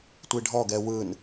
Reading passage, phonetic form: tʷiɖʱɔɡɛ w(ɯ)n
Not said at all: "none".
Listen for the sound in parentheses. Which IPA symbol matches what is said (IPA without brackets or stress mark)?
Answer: ɯ